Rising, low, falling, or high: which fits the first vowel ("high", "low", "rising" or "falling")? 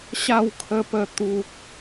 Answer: falling